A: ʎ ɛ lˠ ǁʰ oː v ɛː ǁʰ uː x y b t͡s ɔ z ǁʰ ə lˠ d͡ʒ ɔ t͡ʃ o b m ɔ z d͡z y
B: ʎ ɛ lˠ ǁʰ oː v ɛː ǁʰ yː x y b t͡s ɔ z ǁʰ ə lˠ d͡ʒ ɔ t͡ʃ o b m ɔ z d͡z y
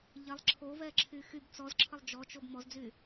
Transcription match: B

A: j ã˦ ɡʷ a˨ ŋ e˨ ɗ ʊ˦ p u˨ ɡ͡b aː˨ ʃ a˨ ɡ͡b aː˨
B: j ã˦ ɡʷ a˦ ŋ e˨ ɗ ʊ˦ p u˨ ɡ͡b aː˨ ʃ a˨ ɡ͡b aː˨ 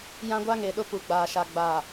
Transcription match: B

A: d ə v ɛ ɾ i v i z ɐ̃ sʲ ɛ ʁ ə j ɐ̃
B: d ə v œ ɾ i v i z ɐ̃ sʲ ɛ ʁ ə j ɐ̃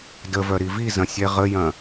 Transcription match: B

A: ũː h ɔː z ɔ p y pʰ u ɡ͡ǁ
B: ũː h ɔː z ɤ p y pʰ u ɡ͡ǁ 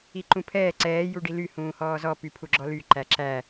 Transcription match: A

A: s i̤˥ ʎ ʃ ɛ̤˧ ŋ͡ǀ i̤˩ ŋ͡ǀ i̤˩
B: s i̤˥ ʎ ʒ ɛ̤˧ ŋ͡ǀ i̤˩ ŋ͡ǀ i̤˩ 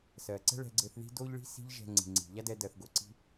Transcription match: B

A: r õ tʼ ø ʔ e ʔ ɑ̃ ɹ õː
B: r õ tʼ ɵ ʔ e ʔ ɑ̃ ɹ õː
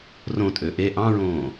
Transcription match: A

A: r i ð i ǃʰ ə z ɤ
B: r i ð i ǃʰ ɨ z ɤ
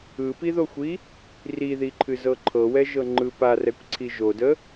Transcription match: B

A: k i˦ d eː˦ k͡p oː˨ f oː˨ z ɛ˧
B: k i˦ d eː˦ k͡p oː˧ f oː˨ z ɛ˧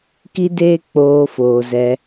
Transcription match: B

